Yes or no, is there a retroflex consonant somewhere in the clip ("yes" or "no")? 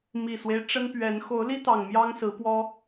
yes